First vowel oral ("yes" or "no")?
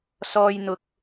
yes